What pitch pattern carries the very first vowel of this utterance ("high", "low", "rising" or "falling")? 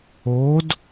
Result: rising